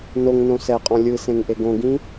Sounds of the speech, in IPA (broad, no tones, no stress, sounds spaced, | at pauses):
n o ŋ n õ s ɛ qʼ ɔ̃ lʲ ɯ s ẽ ŋ ʔ e ɡ õ ɡ ĩ